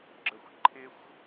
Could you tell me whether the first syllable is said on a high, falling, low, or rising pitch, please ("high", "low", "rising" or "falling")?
low